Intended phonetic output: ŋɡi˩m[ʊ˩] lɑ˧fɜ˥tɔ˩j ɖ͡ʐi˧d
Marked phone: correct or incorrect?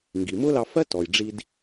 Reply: incorrect